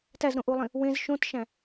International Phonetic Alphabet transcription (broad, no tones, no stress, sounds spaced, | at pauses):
t æ z ɾ õ ʔ u lˠ ĩ | w ẽ z ʃ õ t ʃ æ̃